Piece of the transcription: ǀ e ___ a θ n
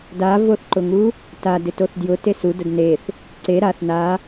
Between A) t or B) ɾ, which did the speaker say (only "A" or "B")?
B